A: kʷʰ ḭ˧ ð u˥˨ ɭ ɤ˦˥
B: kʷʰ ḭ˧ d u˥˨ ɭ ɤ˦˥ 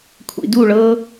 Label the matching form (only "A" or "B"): B